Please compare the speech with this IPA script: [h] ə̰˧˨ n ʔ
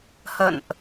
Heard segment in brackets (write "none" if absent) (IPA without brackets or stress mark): h